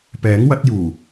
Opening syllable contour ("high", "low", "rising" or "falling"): rising